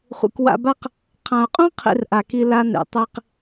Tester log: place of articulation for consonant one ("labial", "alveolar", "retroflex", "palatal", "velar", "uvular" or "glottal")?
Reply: uvular